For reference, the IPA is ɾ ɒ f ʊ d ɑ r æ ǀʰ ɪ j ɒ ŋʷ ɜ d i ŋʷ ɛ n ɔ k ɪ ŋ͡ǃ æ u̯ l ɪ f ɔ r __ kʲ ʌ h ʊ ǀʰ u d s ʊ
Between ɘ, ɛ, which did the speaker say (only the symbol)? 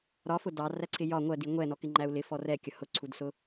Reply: ɛ